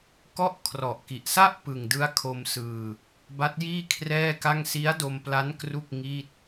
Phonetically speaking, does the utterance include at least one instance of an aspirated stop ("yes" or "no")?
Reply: yes